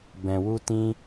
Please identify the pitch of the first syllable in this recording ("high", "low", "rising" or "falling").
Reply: low